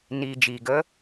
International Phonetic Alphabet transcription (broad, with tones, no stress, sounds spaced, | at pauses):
n iː˨ d͡ʒ iː˨ ɡ ə˦